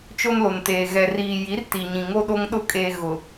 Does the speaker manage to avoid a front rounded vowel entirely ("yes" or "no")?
yes